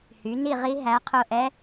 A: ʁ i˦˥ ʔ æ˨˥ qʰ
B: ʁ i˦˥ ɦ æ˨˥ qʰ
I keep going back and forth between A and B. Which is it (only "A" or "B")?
B